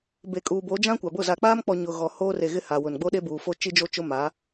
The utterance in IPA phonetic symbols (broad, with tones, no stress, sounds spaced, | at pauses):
b e˨ kʼ uː˨ b o˨˦ d͡ʒ ã˦ kʷ a˨ b ʊ˦˨ z a˨ k͡p aː˦ m k͡p ɔ˨ ɲ ʊ˨ ɣ ɔ˨ h oː˦ r e˨ ɣ ɪ˦ h a˨ w ʊ˨ n ɡ͡b o˦ ɗ e˦ b uː˨ f o˦ t͡ʃ i˦ d͡ʒ o˦ t͡ʃ ʊ˦ m aː˨˦